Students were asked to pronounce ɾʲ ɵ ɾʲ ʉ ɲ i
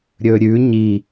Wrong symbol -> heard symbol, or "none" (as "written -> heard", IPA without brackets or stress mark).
none